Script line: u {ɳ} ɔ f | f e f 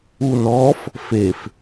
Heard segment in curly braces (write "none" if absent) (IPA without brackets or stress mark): n